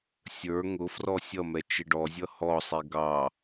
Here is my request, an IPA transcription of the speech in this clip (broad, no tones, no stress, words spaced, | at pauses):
sʲə˞ ŋʊfrɔ sʲʌmɛ t͡ʃɪɖɔzʲʌ hɔsˤi ɡɑ